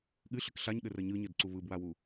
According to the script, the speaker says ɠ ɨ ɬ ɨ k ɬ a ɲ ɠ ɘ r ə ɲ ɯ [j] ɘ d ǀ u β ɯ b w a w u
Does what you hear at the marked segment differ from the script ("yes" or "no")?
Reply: yes